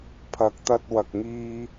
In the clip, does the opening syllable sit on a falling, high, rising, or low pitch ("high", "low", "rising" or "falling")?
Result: low